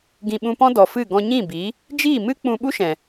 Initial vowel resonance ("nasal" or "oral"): nasal